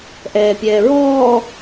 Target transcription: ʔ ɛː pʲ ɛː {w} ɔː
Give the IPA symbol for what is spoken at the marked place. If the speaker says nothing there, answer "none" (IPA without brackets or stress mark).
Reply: ɹ